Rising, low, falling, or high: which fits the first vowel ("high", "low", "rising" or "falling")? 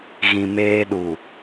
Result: low